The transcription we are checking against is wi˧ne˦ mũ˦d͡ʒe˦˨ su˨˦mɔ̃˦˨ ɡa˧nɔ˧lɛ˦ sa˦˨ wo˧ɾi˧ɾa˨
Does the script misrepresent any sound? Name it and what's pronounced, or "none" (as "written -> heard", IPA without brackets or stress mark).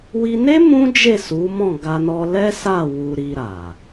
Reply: o˧ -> u˧